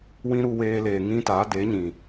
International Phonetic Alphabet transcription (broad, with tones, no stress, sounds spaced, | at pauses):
w ĩ˦ ɾ u˧ w eː˧ l eː˨ ŋ ĩ˦ t a˨˦ d e˨˦ ɲ ĩ˨